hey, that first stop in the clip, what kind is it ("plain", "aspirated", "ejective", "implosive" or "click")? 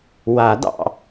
plain